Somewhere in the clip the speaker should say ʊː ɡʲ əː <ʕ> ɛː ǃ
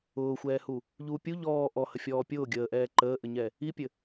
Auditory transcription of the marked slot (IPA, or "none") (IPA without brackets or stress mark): ʔ